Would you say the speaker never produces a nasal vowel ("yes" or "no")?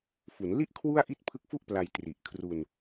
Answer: yes